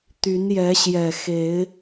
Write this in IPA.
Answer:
t̪ y˨˦ n j ɛ˨˦ ɕ j ɛ˨˩ x e˨˦ ɪ̯

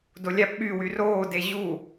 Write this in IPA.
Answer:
d o lʲ æ p ɓ y w y r oː d e ʑ u

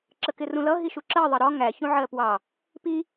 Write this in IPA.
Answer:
ǁ ə k ɪ r ũ l ʌ ɦ i ʃ u ǁ ɜ ðˤ ʌ ɾ ɔ ŋ æ ç ũ ʕ ɜ p w ɑ | p i

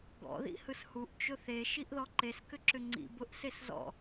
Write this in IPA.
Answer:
ɡ ɔ̰ ð ḭ h ɯ s h u ʔ t͡ʃ ʊ θ e ʃ i ʔ ð ɔ ǃ e s k ʏ ǁ ʏ ŋ͡ǀ ḭ b ʊ ʔ s e s z ɔ̰

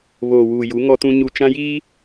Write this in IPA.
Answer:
β oː˨ w uː˨ j u˨˦ ŋ ɔ˦ t ũ˦ ɲ u˦ t͡ʃ ã˦ j iː˦

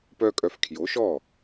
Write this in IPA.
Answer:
p œ˥ kʼ œ˧ f kʰ j o˩˥ ʃ ɔ˥˩

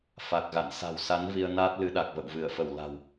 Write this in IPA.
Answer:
f a˨˩ k̚ ɣ a̰˧˨ n s a̤˨˩ w s a˨˦ n v i˧ ə̯ n a˦˥ t̚ l ɨ˨˦ ɗ a˨˩ k̚ v ə̰˧˨ w v ɨ˧˩ ə̯ f ə˧˩ w l a̤˨˩ w

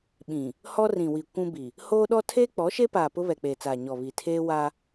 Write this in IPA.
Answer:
ɓ ĩ˨ | h ɔ˦ r ĩ˨ w i˨ kʷ ũ˦ b i˨ | h oː˦ ɗ ɔ˦ tʰ eː˦ k͡p ɔ˨˦ ʃ e˦ p aː˨ p ʊ˦ β ɛ˨ k͡p eː˨ t͡s aː˨ ɲ ɔ˨ β i˨ tʰ eː˦ w a˦

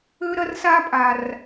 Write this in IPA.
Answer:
ø˦ ɾ ɐ˦ r s a˦ pʼ a˨ r

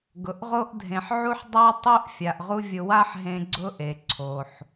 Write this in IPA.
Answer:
ɡ ʊ˩ ʔ ʁ o˥ ʔ dʱ ẽ˩ ħ ʕ u˥ ħ dˤ a˥ tˤ o˥ ʔ fʲ a˩ ʔ ʁ u˥ vʲ ʊ˧ w a˥ ħ ɦ ẽ˧ ɡ͡ǀ ʊ˥ ʔ e˩ ǀʰ o˩ ħ

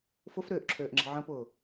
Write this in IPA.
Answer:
f ʊ f ɾ ʏː ʔ ǁʰ øː ʔ ŋ͡ǁ ə̤ ʕ ə̃ p ʊː

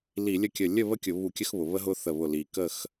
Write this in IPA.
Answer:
l i˧˩˧ lʲ ə˥˨ kʲ ə˧˩ lʲ ə˥˨ β ə˥˨ kʲ ʊ˧˩˧ β u˧˩˧ kʲ ə˦ x β ʊ˩ β ə˦ ɦ ʊ˦ θ ə˧˩ β ʊ˧˩ l i˩ k ə˥˨ x

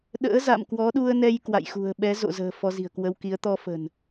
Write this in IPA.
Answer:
ɗ ə̰ː˧˥ z a̰˧˨ m k w ɔ˨˦ ɗ u˧ ə̯ n ɛ˧ j k w a̰˧˨ j x ṳ˨˩ ə̯ ɓ ɛ˨˦ z o̰˧˨ z ə̤ː˨˩ f ɔ˧ z i̤˨˩ ə̯ k w ə˧ w k i˨˦ ə̯ t̪ ɔ˧ f ə̤˨˩ n

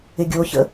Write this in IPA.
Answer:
ɪ ɡʲ o ç ə̰

